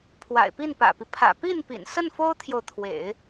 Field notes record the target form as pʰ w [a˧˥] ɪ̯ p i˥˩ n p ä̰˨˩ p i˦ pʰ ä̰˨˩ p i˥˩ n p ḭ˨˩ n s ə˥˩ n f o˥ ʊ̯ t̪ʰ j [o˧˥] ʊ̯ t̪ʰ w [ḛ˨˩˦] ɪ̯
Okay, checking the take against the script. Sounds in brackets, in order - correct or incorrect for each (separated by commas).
incorrect, incorrect, correct